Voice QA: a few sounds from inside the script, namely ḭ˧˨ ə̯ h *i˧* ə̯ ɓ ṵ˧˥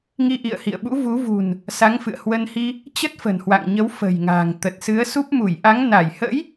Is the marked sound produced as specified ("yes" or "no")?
no